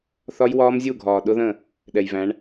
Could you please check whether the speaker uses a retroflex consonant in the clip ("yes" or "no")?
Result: yes